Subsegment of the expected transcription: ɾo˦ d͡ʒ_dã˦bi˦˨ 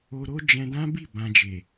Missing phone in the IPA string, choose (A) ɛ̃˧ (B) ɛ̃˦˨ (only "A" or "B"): A